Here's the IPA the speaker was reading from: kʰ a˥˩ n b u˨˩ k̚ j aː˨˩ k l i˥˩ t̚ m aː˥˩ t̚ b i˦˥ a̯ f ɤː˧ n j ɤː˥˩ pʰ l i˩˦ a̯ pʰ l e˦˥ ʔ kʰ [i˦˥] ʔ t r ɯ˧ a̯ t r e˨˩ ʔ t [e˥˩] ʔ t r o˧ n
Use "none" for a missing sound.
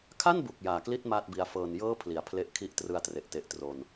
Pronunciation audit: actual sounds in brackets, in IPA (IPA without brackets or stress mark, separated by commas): i˦˥, e˨˩